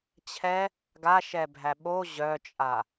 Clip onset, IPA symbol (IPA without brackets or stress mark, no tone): t͡ɕʰ